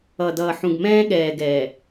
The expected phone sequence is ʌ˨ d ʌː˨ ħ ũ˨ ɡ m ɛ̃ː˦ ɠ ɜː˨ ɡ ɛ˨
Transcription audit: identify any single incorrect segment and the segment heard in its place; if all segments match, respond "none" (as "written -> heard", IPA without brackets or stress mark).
ɜː˨ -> ɛː˨